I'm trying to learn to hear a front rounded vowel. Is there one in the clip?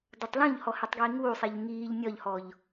no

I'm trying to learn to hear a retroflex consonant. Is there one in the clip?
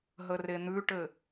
yes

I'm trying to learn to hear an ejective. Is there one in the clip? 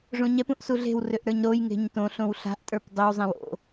yes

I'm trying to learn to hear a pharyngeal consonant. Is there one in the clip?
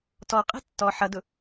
yes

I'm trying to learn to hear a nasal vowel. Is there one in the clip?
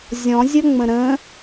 yes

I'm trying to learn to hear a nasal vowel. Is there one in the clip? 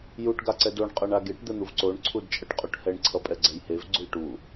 no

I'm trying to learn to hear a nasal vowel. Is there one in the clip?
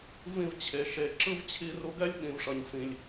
yes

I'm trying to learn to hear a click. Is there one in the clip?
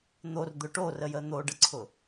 yes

